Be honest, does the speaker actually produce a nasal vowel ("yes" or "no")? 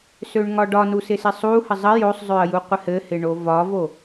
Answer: no